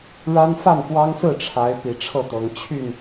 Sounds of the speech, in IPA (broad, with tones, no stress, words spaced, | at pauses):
ɻa˦nfa˥˨nfwɑ˦ŋ sɹ̩˥˨ʈ͡ʂʰa˨˦ɪ̯ pi˨˩ʈ͡ʂʰɤ˥˨t̪ɤ˨˦ŋ t͡ɕʰy˥˨n